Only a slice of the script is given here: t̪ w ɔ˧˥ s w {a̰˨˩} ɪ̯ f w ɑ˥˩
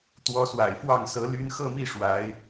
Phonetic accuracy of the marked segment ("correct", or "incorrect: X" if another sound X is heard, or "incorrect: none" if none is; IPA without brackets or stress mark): correct